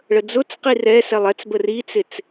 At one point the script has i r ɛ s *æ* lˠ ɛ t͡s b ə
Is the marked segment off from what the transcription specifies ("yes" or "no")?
yes